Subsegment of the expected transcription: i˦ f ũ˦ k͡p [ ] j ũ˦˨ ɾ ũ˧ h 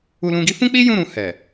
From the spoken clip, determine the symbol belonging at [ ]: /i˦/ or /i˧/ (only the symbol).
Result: i˦